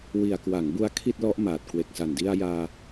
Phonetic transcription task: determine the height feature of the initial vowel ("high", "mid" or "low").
high